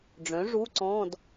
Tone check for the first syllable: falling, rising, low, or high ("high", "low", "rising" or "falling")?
rising